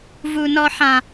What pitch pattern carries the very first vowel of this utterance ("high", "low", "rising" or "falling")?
high